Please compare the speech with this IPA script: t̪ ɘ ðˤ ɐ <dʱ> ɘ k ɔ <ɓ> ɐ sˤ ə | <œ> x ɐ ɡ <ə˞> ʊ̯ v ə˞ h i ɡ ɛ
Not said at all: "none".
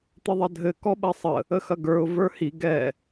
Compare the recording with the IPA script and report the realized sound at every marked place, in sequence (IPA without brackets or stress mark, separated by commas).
dʱ, ɓ, ə, ə˞